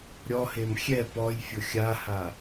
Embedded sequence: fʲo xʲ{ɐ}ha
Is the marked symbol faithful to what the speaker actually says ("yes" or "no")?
no